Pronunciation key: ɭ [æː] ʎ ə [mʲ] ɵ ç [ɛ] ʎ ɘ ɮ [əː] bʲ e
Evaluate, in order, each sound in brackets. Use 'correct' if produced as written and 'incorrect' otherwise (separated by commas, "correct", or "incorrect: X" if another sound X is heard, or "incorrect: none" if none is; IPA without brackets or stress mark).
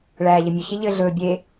correct, correct, incorrect: e, incorrect: ɵː